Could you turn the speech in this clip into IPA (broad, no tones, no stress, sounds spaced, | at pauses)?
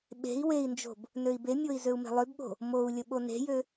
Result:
ɓ e̤ i̯ w e i̯ n d͡ʒ o̤ b | n ø i̯ b e mʲ o i̯ z ø u̯ m e̤ lˠ ø b ɓ o̤ | m o u̯ lʲ ə ɓ o n e̤ j ø